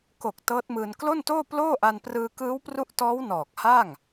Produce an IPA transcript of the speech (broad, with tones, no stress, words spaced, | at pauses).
ko˨˩k̚ tɤː˦˥t̚mɯː˧n klo˥˩ntoː˥˩ ploː˥˩ʔa˧n prɯː˧kɯː˦˥wpru˦˥ʔtɔː˦˥w nɔː˨˩k̚ha˥˩ŋ